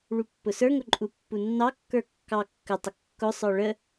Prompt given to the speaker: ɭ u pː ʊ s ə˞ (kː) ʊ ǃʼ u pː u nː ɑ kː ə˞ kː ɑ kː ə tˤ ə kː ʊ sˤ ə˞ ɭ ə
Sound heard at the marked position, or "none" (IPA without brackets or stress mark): ŋ